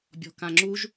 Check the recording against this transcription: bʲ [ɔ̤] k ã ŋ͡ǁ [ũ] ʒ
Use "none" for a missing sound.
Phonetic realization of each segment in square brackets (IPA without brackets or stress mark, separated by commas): ɔ̤, u